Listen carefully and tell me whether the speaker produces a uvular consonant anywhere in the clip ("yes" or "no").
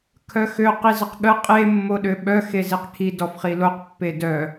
yes